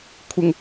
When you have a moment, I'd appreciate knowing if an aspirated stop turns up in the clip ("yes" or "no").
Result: yes